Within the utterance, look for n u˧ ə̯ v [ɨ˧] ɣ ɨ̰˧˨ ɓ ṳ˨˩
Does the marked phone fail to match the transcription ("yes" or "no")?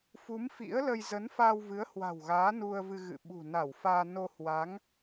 no